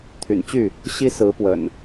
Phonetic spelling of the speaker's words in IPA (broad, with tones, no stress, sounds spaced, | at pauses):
t̪ʰ y̰˨˩ n t͡ɕ y˥˨ | ɕ i˦ s ɹ̩˨˦ p w ə̰˨˩ n